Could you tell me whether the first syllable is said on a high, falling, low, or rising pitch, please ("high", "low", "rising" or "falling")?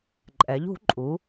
rising